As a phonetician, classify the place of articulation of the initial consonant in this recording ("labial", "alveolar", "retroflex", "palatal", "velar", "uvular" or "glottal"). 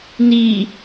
alveolar